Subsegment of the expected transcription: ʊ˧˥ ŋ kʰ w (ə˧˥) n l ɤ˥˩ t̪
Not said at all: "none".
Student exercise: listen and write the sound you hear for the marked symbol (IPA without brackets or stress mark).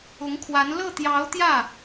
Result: a˧˥